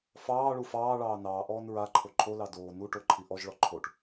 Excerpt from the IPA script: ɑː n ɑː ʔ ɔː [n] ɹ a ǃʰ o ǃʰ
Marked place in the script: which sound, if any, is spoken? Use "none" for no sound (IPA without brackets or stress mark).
n